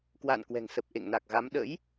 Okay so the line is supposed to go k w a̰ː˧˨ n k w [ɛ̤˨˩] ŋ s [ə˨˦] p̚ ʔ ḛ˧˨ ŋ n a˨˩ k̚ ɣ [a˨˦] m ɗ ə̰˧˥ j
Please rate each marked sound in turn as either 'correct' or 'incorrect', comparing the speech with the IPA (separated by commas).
correct, incorrect, correct